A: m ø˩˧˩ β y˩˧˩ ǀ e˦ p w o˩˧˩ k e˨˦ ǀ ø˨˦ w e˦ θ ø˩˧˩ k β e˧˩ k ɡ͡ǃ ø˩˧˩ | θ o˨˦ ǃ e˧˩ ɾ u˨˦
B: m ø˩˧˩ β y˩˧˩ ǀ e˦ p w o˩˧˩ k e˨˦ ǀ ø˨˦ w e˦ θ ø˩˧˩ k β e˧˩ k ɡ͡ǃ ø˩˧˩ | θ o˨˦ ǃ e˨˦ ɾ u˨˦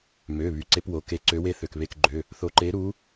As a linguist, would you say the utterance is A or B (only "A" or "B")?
B